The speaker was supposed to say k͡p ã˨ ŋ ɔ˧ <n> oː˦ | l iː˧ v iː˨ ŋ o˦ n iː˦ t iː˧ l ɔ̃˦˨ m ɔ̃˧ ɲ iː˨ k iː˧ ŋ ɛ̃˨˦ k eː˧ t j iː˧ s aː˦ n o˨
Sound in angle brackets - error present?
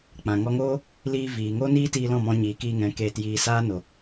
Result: yes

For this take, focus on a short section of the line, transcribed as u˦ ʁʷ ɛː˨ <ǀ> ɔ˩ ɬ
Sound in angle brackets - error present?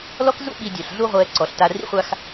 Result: no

